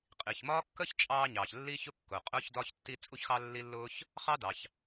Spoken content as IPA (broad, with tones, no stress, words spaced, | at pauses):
qʼi˩çmɒː˥ kːə˥ç t͡ʃʼɑː˥ɲɑː˩ç lːi˥çʊ˥kːʊː˩qʼʊː˥ç dɒː˥çtːi˥ t͡sʼu˥çxɑ˥lːi˥ lːʊː˥ç | χɑ˥dɑ˩ç